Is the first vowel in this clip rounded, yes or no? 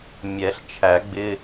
no